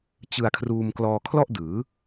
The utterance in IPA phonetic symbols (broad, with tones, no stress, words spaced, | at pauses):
t͡ɕɯ˧a̯kʰruː˧m klɔː˧kʰlɔ˥˩ʔdɯː˩˦